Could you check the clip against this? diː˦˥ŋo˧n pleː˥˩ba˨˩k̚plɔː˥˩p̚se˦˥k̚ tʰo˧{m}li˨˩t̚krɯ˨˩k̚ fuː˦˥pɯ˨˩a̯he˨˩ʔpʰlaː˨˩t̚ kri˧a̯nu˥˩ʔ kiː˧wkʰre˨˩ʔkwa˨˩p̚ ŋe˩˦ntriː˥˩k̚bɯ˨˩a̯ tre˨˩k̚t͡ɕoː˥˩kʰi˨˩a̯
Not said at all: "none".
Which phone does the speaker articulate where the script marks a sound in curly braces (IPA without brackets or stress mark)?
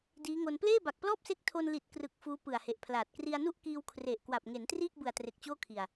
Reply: n